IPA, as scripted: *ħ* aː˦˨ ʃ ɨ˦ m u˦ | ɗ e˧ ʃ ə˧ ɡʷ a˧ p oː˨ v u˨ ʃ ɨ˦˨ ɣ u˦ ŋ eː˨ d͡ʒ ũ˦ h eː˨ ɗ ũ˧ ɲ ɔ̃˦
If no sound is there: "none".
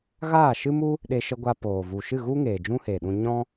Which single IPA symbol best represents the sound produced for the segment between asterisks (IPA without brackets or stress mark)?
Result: ɣ